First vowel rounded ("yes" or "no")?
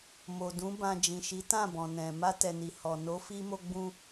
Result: yes